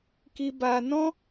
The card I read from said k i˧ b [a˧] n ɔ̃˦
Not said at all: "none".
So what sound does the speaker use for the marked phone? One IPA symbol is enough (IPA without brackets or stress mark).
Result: a˧